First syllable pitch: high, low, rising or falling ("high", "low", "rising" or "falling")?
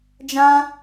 high